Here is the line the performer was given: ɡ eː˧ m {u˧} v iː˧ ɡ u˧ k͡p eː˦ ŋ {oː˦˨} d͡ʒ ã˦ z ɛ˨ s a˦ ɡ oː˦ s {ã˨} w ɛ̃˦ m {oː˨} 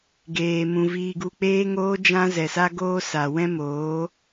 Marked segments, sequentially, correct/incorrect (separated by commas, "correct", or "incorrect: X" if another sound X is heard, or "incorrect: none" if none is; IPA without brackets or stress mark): incorrect: ũ˧, incorrect: oː˦, incorrect: a˨, incorrect: oː˨˦